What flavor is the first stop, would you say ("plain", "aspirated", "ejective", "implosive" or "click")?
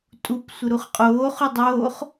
ejective